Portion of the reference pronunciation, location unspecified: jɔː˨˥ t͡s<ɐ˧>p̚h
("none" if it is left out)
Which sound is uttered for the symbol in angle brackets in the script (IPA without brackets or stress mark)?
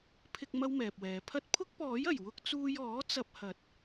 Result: ɐ˧